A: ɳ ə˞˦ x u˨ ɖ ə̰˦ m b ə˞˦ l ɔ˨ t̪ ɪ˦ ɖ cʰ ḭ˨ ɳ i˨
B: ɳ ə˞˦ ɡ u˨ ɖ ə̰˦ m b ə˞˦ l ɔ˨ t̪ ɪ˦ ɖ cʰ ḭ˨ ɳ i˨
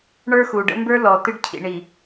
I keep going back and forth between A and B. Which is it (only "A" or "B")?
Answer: A